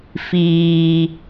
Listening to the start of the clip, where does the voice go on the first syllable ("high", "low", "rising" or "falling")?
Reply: low